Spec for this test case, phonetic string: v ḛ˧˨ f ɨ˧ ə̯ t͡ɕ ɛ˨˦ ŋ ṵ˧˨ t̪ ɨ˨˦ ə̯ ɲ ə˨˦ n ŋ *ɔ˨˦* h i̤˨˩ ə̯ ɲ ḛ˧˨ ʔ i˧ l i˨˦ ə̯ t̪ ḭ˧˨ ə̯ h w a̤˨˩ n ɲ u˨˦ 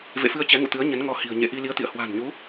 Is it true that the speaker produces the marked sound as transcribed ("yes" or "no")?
yes